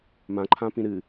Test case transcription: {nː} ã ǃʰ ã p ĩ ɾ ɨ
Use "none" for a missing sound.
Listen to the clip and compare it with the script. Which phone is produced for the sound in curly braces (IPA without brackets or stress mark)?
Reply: m